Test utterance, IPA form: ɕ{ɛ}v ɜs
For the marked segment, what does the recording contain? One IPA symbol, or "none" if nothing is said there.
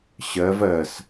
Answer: ɜ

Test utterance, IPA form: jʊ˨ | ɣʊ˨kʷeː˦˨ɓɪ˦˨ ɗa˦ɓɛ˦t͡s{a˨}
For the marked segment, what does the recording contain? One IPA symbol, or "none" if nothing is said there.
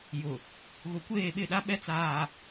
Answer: aː˨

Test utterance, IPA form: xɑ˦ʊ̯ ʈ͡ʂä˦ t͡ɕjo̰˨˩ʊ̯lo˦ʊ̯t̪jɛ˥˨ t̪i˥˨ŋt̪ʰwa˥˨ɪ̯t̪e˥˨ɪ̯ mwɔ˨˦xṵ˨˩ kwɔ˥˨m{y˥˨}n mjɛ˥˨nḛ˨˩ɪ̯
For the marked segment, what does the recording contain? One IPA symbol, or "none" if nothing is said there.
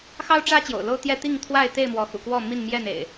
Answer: i˥˨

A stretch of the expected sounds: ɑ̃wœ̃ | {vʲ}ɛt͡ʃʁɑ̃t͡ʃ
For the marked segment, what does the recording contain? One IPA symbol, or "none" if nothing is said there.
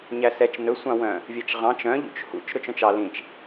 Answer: vʲ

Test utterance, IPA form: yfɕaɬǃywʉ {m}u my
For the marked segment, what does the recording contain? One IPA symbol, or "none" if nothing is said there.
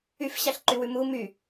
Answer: m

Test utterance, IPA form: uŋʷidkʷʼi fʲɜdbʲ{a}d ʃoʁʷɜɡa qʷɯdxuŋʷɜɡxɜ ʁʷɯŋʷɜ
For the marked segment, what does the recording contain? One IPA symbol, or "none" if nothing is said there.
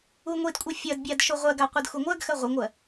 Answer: a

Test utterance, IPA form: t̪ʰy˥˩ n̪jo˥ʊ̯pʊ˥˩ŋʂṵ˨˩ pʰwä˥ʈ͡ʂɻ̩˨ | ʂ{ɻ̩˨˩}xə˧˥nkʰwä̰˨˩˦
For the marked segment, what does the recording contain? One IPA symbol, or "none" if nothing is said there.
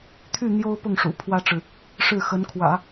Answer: ɻ̩˥˩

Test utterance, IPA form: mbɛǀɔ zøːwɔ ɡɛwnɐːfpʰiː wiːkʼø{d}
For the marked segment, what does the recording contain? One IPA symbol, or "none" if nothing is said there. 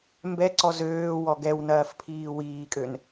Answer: n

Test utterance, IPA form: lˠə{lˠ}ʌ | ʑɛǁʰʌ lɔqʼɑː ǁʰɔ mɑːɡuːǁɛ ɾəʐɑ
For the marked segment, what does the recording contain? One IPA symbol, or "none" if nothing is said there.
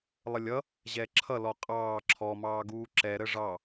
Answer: lʲ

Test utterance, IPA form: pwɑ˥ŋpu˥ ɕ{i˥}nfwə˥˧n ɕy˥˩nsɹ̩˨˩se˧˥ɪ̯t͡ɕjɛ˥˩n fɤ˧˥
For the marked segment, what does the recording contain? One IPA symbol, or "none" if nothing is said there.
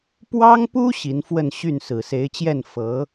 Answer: i˧˥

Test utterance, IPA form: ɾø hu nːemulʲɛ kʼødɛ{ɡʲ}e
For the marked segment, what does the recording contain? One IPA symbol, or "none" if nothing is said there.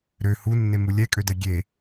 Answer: ɡʲ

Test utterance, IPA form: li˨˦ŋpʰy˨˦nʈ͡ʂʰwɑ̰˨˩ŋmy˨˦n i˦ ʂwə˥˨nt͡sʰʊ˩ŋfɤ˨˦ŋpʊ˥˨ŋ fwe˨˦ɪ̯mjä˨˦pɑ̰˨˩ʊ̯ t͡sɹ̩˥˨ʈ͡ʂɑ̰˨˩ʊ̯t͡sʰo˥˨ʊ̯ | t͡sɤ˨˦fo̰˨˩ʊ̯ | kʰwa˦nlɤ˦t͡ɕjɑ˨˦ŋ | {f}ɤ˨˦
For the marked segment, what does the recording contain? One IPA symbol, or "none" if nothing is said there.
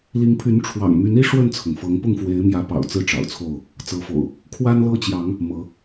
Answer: m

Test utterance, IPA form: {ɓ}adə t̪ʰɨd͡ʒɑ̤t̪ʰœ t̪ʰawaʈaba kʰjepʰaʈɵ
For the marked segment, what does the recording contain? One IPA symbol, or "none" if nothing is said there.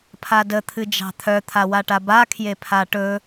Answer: pʰ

